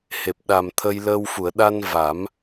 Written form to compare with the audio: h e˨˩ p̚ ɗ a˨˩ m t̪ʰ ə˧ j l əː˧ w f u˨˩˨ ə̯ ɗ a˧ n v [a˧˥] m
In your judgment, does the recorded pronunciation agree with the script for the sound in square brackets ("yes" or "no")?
no